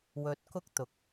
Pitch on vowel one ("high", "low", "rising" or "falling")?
rising